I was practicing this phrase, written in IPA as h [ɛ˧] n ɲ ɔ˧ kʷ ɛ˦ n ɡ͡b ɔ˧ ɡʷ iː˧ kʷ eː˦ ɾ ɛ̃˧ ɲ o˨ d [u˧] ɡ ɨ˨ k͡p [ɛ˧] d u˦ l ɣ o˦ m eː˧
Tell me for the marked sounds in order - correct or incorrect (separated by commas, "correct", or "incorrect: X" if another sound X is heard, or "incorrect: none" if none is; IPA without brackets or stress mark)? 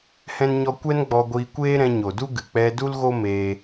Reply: incorrect: ɛ̃˧, incorrect: u˦, correct